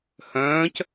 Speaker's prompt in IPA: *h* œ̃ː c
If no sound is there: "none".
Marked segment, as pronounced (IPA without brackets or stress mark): h